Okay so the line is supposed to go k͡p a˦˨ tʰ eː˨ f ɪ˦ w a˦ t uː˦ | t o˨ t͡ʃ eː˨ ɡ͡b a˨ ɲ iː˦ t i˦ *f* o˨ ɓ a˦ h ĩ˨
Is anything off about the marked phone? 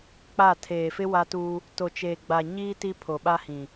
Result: yes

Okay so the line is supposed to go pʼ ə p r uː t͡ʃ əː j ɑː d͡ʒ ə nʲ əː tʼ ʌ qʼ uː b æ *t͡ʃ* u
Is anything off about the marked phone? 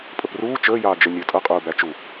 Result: no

